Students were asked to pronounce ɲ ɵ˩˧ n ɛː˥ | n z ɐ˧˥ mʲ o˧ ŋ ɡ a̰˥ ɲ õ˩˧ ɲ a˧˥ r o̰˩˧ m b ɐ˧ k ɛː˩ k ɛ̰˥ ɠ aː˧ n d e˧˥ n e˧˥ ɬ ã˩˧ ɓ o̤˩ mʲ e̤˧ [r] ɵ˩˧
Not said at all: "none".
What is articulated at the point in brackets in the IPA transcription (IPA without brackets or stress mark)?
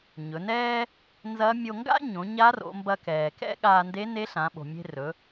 r